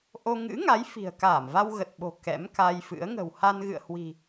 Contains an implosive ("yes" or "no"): yes